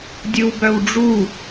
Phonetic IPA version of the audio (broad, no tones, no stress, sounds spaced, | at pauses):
dʲ ɯ w b œ w ɖ͡ʐ u